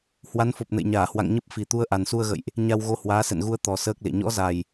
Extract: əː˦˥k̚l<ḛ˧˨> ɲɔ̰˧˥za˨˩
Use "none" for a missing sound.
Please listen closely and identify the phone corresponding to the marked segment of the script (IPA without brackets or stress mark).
ḛ˧˨